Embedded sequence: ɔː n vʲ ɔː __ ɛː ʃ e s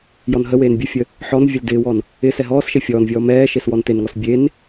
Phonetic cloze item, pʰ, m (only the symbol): m